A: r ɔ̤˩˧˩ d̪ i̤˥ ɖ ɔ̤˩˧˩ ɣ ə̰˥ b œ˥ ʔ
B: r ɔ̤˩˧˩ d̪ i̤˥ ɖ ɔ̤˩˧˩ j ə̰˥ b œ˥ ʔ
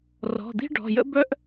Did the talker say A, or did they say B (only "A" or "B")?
B